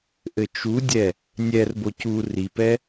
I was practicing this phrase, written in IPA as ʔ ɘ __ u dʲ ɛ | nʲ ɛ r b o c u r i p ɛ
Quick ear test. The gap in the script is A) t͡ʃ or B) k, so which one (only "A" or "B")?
A